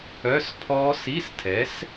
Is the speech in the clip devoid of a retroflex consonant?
yes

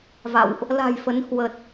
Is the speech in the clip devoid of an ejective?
yes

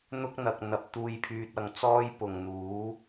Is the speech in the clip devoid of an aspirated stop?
no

